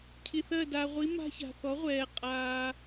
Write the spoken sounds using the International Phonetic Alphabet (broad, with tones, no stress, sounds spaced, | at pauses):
cʰ i˨ θ ɜ˦˨ d a˨ ʁʷ i˨˥ m a̤˦ ç a̤˨ θ ɔ˨˥ ʁʷ ɛː˨ qʼ aː˨